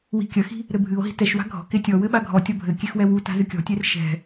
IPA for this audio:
w i̤ kʲ ɐ x i̤ | ɾ ɘ bʱ ɨ o̯ ɦ i̤ t ɛ ʃ w a̤ ɡʱ ɔ̤ k e tʲ ɔ w ɘ ɓ a ɡʱ ɔ tʲ ɔ bʱ ɘ kʲ e x w ɛ w u t a̤ z ɨ kʲ ɔ̤ tʲ e r ʃ ɛ̤

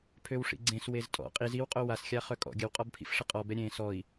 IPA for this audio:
pʰ ø w ʂ ḭ ɡ͡ǀ ẽ s w e z tʼ ɔ̰ qʼ i z i w qʼ o w a s xʲ a χ œ kʼ ɔ̰ ɡʲ ə w qʼ ɔ b pʰ ḭ f ʂ ə qʼ ɔ b ɛ ɾʲ ẽ s ɔ i̯

